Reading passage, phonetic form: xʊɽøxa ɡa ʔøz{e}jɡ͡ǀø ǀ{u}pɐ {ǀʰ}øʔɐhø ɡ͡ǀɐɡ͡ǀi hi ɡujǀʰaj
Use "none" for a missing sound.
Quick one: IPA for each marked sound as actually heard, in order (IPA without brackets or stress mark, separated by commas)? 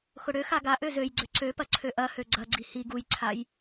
ø, ø, ǀʰ